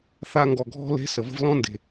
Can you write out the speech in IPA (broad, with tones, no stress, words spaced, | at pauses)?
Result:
θa˧ŋɡɔ˨ɡʱɔ̤˦ le̤˦sə˨ və̤˧vlɔ̃˦nde̤˨